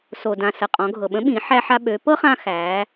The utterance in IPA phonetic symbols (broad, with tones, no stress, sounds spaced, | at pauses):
s o˩ d ã˩ s ə˩ qʼ ɔ̃˩˧ ɡʱ ɤ˩ ɓ ə̃˧˥ ɓ ĩ˩˧ ħ æ˧ ħ a˧ ɓ ø˩˧ p ɤ˥ χ ã˧ x æ˩˧